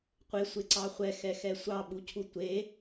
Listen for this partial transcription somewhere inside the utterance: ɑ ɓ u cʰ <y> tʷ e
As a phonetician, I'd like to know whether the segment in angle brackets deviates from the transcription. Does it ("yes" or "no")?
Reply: yes